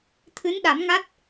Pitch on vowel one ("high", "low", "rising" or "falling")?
rising